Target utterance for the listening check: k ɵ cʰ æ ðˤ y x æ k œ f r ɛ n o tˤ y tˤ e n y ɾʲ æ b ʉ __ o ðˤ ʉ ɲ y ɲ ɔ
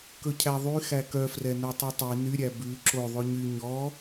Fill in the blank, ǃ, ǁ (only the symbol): ǁ